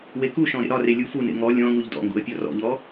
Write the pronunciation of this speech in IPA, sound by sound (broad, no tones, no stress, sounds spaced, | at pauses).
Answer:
w e k u ʃ ɔ̃ ɾ ḛ ɾ ɒ r e lʲ u f u n ḛ ŋ ɔ lʲ ɔ̃ ŋ u ʎ d ɔ̰ ŋ ɡ ṵ ə̯ pʲ ɒ r ɔ̰ ʎ ɔ